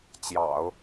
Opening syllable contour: low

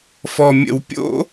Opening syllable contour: low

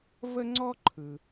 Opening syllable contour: high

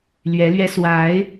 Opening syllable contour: rising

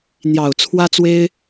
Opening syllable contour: low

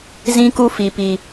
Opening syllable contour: high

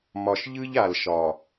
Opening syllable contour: low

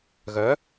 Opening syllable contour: rising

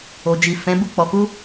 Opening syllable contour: low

